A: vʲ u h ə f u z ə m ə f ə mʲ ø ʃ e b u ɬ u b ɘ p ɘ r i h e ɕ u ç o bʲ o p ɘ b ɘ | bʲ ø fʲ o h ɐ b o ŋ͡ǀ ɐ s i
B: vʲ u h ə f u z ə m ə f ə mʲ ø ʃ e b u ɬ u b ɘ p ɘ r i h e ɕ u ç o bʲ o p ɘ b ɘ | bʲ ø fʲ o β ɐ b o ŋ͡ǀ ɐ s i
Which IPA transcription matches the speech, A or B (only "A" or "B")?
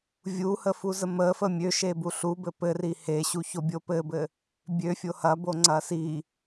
A